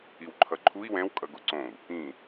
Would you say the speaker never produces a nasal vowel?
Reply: no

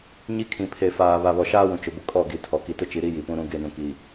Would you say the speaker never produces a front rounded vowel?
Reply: yes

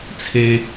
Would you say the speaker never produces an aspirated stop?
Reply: no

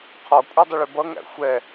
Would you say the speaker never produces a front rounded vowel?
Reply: yes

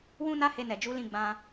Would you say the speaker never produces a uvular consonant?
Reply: yes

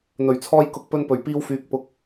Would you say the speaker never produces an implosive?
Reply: yes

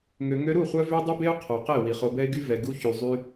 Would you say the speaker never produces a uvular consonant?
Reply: no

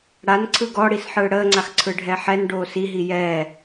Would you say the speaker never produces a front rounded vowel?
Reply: yes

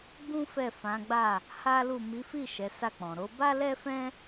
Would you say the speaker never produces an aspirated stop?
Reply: yes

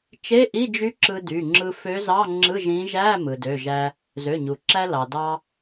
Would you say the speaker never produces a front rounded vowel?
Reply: no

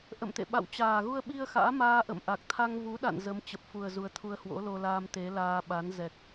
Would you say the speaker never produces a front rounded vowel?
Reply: yes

